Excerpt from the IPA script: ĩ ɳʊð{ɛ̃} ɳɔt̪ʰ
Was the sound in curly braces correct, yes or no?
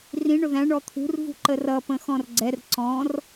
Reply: no